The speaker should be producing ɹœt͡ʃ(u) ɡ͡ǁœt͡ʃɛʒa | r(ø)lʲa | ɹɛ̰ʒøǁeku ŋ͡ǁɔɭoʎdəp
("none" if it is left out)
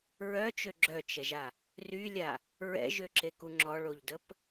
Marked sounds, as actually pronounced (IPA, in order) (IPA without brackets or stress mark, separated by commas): ø, y